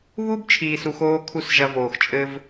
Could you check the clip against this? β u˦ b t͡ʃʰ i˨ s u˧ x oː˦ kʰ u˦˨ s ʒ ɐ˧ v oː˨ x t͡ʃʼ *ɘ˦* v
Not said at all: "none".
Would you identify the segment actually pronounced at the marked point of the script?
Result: ɘ˦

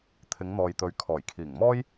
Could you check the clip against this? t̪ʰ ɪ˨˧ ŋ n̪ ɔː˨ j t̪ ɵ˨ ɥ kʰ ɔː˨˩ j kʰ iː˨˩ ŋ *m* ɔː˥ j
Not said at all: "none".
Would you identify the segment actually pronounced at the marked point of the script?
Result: m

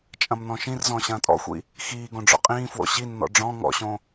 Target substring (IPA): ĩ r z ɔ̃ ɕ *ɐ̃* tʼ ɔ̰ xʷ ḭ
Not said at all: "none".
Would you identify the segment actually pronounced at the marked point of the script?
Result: ɐ̃ː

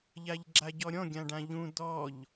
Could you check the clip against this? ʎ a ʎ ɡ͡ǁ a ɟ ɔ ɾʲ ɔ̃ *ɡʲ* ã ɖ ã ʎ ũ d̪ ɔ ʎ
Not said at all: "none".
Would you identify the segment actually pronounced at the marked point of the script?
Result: ɡʲ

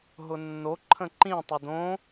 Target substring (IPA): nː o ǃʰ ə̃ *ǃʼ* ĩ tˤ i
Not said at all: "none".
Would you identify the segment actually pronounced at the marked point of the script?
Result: ǃ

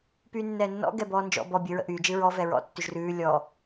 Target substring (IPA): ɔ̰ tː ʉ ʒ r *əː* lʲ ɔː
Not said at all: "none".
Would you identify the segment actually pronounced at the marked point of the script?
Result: ʉː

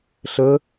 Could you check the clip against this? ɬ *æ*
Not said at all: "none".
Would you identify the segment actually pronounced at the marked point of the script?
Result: ə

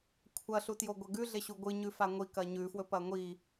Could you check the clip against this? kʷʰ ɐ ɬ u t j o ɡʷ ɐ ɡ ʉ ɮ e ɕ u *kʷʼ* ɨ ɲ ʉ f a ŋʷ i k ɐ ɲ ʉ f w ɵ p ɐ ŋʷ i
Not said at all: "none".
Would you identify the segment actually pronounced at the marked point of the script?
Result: ɡʷ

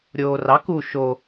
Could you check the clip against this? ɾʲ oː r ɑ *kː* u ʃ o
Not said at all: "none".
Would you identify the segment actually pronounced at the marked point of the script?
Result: k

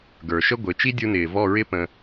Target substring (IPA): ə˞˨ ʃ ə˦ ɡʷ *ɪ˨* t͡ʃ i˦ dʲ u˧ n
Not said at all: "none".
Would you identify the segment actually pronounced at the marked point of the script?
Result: ɪ˨˦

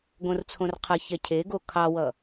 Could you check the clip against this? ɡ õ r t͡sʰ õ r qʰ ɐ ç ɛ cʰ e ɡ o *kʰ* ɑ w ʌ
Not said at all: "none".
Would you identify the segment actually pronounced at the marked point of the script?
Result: kʰ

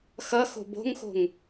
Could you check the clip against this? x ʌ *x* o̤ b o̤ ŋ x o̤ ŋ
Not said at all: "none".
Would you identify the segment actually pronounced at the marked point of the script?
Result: x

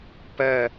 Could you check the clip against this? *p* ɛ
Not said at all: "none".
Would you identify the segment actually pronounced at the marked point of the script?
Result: p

